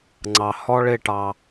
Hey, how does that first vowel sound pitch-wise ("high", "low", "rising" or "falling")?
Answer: low